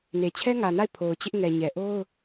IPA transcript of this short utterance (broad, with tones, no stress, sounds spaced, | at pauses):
n e˨ t͡ɕʰ ɛ˦ ŋ ä˨ n a˦˨ ɪ̯ pʰ o˨ ʊ̯ t͡ɕ ɪ˦ ʔ ŋ ɛ˨ ɲ ɛ˨ ʔ o˦ ʊ̯